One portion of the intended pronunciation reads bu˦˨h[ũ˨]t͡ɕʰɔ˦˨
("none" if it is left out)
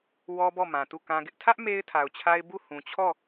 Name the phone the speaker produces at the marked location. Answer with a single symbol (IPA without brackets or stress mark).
ũ˨